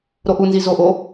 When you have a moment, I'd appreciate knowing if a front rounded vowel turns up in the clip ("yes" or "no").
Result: no